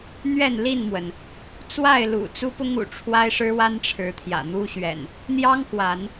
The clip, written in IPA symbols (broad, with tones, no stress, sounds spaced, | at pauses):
n̪ ɥ ɛ˥˨ n l i˥˨ n m w ə˩ n | t͡s w a˥˨ ɪ̯ l ṵ˨˩ t͡s u˦ p ʊ˦ ŋ ṵ˨˩ ʈ͡ʂʰ w a˦ ɪ̯ ʂ ɻ̩˦ w a˦ n ʈ͡ʂʰ ɻ̩˨˦ t̪ʰ j ä̰˨˩ n̪ u˦ ɕ ɥ ɛ̰˨˩ n | n̪ j ɑ˦ ŋ k w a˨˦ n